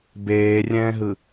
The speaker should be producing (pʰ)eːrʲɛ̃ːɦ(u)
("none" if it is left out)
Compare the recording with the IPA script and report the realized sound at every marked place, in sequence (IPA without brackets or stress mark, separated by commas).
b, ɯ